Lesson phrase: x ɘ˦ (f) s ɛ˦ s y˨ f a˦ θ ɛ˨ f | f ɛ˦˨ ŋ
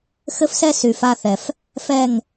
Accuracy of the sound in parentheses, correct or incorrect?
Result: correct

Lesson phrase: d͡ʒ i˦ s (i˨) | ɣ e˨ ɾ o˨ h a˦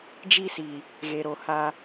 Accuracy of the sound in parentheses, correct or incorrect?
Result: correct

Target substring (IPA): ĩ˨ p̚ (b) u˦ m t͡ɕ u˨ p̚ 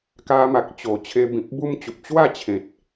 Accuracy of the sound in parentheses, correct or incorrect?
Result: correct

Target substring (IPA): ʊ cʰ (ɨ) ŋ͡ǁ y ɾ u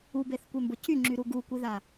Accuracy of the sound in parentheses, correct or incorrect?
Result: incorrect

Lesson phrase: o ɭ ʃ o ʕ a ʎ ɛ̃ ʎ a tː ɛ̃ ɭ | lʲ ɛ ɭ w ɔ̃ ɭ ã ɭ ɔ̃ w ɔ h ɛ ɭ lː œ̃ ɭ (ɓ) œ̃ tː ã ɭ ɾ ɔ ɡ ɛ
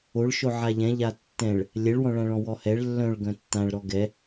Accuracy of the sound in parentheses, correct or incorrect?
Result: incorrect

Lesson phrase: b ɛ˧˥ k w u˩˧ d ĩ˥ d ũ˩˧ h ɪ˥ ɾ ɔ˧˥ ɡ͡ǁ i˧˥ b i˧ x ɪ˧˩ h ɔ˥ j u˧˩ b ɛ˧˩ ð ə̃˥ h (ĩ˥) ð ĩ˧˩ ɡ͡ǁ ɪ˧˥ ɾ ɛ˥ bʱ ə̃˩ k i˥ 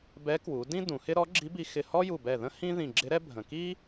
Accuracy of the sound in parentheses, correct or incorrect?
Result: correct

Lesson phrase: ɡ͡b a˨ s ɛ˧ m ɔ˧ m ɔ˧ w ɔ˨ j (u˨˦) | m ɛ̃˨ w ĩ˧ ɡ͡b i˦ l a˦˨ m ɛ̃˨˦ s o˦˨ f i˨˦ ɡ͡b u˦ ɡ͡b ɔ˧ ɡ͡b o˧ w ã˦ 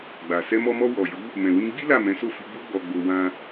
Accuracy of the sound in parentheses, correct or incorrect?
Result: correct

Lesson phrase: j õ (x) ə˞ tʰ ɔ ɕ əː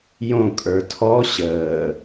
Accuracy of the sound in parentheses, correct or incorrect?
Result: incorrect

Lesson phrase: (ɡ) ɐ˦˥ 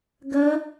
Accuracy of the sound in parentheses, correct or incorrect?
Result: correct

